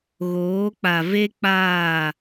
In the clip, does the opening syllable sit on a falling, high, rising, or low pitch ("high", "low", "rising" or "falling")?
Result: rising